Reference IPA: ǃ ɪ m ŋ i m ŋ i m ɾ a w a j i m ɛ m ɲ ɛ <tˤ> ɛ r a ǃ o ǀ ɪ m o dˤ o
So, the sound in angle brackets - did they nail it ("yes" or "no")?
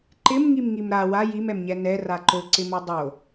no